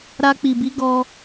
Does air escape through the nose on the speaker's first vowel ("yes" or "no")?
no